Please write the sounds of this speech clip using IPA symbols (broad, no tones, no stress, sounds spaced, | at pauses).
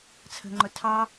t͡sʰ ə̤ ŋ͡ǃ ʊ tʰ ɑ